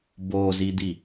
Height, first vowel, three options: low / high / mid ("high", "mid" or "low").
mid